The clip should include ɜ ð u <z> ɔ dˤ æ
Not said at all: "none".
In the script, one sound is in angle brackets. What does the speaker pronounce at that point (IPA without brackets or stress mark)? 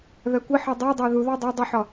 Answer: ð